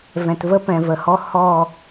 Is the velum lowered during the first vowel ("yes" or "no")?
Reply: yes